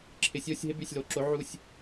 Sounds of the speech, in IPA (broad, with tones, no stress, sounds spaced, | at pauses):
ǁʰ ɪ˨ sʲ o˦˨ sʲ ɦ ɪ˦ b y˨ sʲ l o˨ ǁ o˨˥ ʕ u˦˨ sʲ